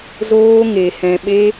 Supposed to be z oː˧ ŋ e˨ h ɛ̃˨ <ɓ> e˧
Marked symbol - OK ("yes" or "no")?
yes